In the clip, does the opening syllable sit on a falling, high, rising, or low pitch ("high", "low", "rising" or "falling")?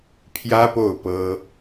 high